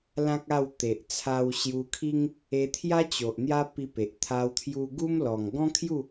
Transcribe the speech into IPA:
l ã˦ k̚ a˥˧ w t̪ e˨ ʔ t͡sʰ a˧ w ɕ j u˧ kʰ i˦ ŋ | e˧ t̪ʰ j a˦ t͡ɕ o˨ ʔ n̪ j a˦ p i˧ p e˨ ʔ t̪ʰ a˧ w t̪ʰ j u˧ ɡ u˦ m l ɔ˨˩ ŋ ɡ ɔ̃˦ kʰ j u˥˧

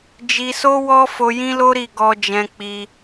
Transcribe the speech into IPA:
d͡ʒ i˧ s o˦ w ɔ˦ f o˧ j ĩ˦ l o˦ ɾ i˦˨ ɡ ɔ˧ d͡ʒ ɛ̃˧ k͡p i˧

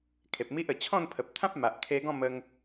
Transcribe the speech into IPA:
kʰ e˨ p̚ m i˦ ʔ ə˨˩ t͡ɕʰ ɔ̃˥˧ n pʰ ə˨ p̚ t̪ʰ ã˦ p̚ m a˨ ʔ kʰ e˧ ɡ ɔ̃˥˧ m ə˧ ŋ

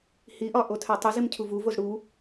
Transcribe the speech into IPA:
h i ʔ ɒ ʔ o tʰ æ tˤ u z i m cʰ u v u v o z ɽ u

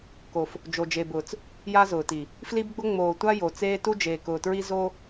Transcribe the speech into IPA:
k o˨ f | d͡ʒ o˨ d͡ʒ e˨ b ʊː˨ t͡s | j a˦ z ʊː˨ t i˨ | f l i˦ b ɡ͡b ʊ˦ ŋ͡m oː˨ tʷ a˦ j o˨ t͡s eː˦ t u˦ d͡ʒ eː˨ k ʊː˨ t ɹ i˦ z o˦

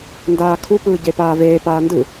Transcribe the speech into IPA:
n d aː kʰ u p ɯː ɟ e p aː v eː p aː n d ɯ

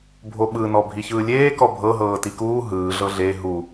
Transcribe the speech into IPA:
bʱ o ɓ ɯ n ɔ bʱ i ç ɯː lʲ eː k ɔ bʱ ɤ ɦ ɤː t i k uː ɦ ɯː ɮ ɤ ɮ e ɦ u

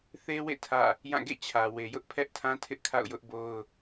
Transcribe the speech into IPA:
θ e˦ w ḛ˦˨ tʰ ä̰˦˨ | j ã˦˨ ɡ ḛ˦˨ t͡ɕʰ ä˨ w e˨ j ʊ˦ ʔ pʰ ɛ˦ ʔ tʰ ã˦ tʰ ɪ˦ ʔ kʰ a̰˦˨ ʊ̯ j ʊ˦ ʔ b o˦ ʊ̯

